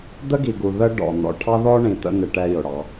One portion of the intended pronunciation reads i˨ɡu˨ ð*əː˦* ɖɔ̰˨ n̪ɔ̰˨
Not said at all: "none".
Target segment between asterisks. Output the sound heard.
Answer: ə˦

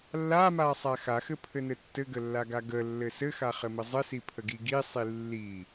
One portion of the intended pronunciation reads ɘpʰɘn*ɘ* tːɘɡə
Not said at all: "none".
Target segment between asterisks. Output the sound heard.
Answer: ɘ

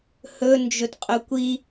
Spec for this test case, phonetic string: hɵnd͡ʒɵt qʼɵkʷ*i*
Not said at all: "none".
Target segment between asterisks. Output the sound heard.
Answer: i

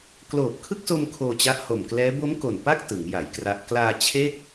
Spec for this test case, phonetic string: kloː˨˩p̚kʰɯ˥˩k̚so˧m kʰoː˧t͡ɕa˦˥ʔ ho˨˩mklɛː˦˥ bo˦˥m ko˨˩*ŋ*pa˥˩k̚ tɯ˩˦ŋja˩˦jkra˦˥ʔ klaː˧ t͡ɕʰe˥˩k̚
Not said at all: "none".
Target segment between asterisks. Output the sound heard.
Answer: n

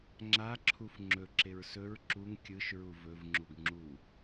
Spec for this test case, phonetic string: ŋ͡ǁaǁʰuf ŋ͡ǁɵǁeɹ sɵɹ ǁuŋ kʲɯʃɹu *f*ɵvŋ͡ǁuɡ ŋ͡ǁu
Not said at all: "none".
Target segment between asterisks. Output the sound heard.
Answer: v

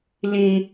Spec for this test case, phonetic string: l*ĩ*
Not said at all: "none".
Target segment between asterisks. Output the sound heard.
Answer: ĩ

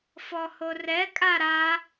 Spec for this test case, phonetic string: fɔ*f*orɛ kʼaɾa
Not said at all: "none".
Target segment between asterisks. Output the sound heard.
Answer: h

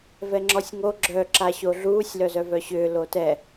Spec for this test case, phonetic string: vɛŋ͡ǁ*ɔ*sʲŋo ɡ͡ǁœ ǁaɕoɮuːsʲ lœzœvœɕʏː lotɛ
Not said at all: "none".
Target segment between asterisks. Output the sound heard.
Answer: ɔ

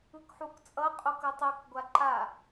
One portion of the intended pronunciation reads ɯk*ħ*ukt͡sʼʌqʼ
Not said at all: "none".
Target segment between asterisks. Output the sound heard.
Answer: ħ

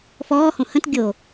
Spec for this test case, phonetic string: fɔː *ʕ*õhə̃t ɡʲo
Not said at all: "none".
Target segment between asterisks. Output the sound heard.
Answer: h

